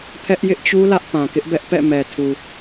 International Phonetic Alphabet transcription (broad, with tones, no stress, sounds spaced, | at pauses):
pʰ ɛ˦ ʔ j ɪ˦ ʔ t͡ɕ u˦ l ä˦ ʔ p ã˨ k ɪ˦ ʔ b ɛ˦ ʔ p ɛ̰˦˨ m ɛ˨ tʰ u˨